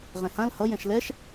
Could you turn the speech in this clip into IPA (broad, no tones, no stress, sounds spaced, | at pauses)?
ʁ ɛ̃ h ã l h ʌ j ɛ̃ ʃ l ɛ ʃ